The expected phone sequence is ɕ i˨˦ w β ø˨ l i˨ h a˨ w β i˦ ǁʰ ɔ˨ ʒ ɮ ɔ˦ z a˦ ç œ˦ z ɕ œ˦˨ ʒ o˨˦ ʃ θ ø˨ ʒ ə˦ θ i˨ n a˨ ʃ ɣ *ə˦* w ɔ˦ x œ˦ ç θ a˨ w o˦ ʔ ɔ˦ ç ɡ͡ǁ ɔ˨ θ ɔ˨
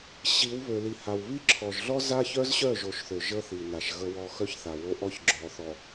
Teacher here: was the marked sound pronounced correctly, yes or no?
yes